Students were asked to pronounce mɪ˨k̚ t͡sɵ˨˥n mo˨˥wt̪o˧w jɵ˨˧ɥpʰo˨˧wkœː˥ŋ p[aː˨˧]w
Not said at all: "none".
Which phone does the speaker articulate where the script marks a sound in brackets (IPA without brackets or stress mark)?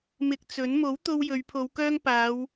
aː˨˧